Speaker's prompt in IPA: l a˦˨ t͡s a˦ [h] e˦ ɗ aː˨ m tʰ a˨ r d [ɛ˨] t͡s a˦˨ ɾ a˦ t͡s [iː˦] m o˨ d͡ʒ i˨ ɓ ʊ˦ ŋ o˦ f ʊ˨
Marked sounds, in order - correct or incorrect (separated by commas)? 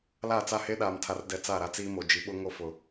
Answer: correct, correct, correct